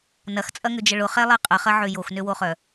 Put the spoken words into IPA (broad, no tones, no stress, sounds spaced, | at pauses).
n ɐ x t͡sʼ ɐ ŋ ʏ d͡ʒ ə ɭ ʊ χ ɛ lˠ ɛ qʼ ə χ ɐ ʕ ø j o x n ø w o χ œ